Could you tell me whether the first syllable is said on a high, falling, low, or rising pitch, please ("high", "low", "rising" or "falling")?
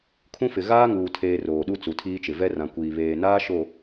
high